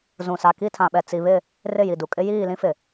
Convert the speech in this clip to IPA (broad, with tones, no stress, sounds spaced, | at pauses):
z ũ˨ s a˨ k i˦˨ tʰ ã˨ ɓ ɛ˨ t͡s i˨ β ɪ˦˨ | r ɪ˦˨ j i˨ d u˨ kʼ ɪ˦ j iː˦˨ l ĩ˦ f ɪ˨